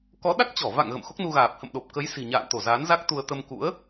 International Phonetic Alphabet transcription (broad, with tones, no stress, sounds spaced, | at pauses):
k ɔ˨˦ ɗ a˦˥ k̚ t͡ɕ ɔ˧˩ v a̰˧˨ ŋ ɣ ə̰˧˨ m x o˦˥ k̚ n u˧ ɣ aː˨˩ p̚ h ə̰˧˨ m ɗ o˨˩ p̚ k ə˨˦ j s i̤˨˩ ɲ a̰ː˧˨ n t̪ o˧˩ z aː˨˦ n z a˦˥ k̚ t̪ u˧ ə̯ t̪ ə˧ m k ṵ˧˥ ə̯